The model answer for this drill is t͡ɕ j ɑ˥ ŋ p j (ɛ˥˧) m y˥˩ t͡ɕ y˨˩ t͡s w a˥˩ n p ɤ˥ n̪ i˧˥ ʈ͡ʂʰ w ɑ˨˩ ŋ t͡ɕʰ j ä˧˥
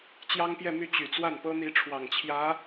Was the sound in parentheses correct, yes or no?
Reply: yes